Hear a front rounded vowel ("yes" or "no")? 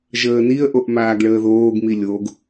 no